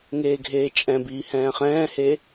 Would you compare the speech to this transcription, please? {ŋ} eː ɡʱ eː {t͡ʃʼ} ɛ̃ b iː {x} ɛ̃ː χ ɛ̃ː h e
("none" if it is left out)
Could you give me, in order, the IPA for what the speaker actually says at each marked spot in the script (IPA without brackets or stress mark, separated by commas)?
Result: ŋ, t͡ʃʼ, h